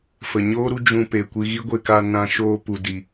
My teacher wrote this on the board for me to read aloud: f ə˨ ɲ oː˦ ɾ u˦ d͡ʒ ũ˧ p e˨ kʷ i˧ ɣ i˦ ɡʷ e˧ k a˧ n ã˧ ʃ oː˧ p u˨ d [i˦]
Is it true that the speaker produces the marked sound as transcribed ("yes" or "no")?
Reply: no